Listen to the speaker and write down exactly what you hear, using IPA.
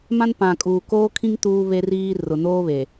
mã˦npã˨ kʼuː˨koː˦kʰĩ˦ŋ tuː˦βe˦riː˦ rʊ˨noː˦βe˨

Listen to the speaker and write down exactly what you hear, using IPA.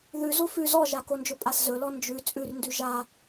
ðʉ zofʉ zɔʒakond͡ʒɵ pʼaszɵlɔ nd͡ʒʉ t͡sʼʉrndʉ ʒa

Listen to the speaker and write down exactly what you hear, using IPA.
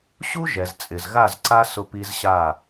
ɕu˦ ʒɛ˨z t͡sʼɪ˨zɣa˦˨zǀa˦ sʊ˦pi˦zɕa˦˨

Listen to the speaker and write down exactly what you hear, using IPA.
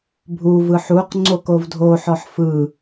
bʱu vɯħuq ŋ͡ǀokovdʱo ħɔħfɯ

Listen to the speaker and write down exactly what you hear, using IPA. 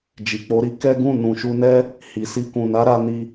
d͡ʒi˨k͡po˨˦ɾi˧ kɛ˦ɡũ˦˨ nũ˨ʃu˧nɛ˦ | hi˨si˧ kũ˨na˨˦ɾa˧ni˧

